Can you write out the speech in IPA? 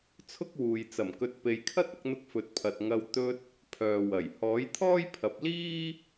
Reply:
t͡sʰʊ˥k̚wuː˨j t͡sɐ˨˩mkɵ˨t̚ pe˨jkʰɐ˥t̚ ɐ˨˥k̚n̪ʊ˧k̚ fɵ˨˥t̚pʰɐ˨t̚ ŋɐ˧w t̪ɵ˧t̚ | pʰœː˨wɐ˨˩j hɔː˨˥jt̪ʰɔː˥jpʰɐ˨˥p̚ liː˥

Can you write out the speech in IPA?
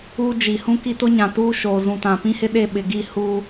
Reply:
uː˦d͡ʒi˨ hũ˦ki˦tʊ˦ɲã˨ tuː˦ʃoː˨zũ˨tã˨ pĩ˦hɪ˦ɗe˦˨ ɓɪ˨ɡi˦˨ huː˦

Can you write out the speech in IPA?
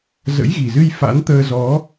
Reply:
zə̰˧˥jɣi˨˩zɨ˧j fa̰˧˥nt̪əː˧zɔ˨˦

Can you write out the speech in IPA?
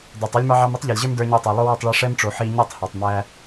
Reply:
dæ˨tˤo˦lʲmɑ˦ʕɑ˦m i˦tˤʎa˨lʲʑə˞˦m də˞˧ɲə˞˧tˤa˨ lˠo˦wɛ˦˨tˤɭa˦ ʂɛ˦mʈ͡ʂo˨ħi˧ ɲi˦˨tˤhɑ˨tˤ mæ˧

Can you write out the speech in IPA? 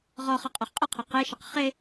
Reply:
ʁɔχʌqʼɔχ qʼəqʰʌ qeʃəq χe

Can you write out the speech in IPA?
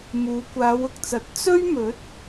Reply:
muː˨˧kʷaː˨˧wʊ˨k̚t͡sɐ˨˥t̚ t͡sɵ˥ɥmɵ˨˥t̚

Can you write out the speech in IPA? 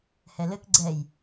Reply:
hɛlɘk ɡ͡ǀɛj

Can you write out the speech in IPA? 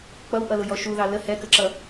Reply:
k͡pʌwʔʌlʊjɔ ʃuðɑ lə hɛkəǁʌ

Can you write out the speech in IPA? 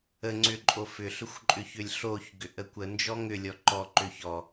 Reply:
əŋ͡ǀʏ ǃʼofʏɬʏxʷ ǃʼʏçʏlʲɬoçɡʏʔ əkʷənd͡ʒɔ ŋʏ lʲɔǃɔǃʏ çɔ

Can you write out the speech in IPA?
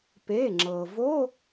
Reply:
pe˩˧˩ŋ͡ǁɤ˩vo˧˥˧

